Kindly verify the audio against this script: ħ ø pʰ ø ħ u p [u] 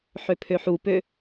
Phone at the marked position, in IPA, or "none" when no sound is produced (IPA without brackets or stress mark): ø